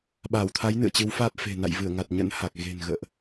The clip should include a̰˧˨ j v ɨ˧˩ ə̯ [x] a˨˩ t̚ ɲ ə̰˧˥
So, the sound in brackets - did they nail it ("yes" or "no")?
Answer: no